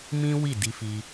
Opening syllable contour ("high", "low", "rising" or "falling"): high